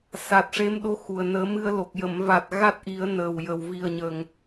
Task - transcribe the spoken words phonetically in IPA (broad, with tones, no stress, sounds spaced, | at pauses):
s a˨˩ t̚ ʂ e˧˥ m ɗ o˧˥ x u˨˩ ə̯ n əː˨˩˦ m ɨ˧ ə̯ l o˨˩ k̚ j ə˨˩˨ m v a˨˩ t̚ ɣ a˦˥ t̚ ʔ i˨˩˦ ə̯ n əː˨˩ w j ə˨˩ w v i˨˩ ə̯ ɲ ə˨˩ ŋ